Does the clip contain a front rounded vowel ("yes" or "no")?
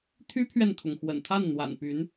yes